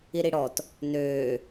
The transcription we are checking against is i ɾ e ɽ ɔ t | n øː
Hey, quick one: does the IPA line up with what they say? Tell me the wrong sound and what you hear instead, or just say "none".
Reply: e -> i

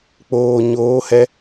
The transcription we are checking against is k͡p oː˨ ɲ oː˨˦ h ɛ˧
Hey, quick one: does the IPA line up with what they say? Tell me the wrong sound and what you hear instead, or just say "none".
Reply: none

